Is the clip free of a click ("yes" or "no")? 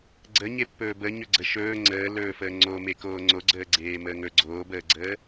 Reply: no